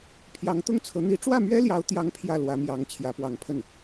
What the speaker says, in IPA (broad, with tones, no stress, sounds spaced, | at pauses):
pʰ j ɑ˧˥ ŋ t̪ ʊ˥˩ ŋ t͡sʰ ɤ˧˥ n̪ i˧˥ ʈ͡ʂ w ä˥˩ m ɥ ɛ˥ l j ɑ˧˥ ʊ̯ t̪ j ɑ˥ ŋ pʰ j ä˥˩ l w ä˧˥ m j ɑ˧˥ ŋ t͡ɕʰ j ä˧˥ p w ɑ˧˥ ŋ pʰ ə˥˩ n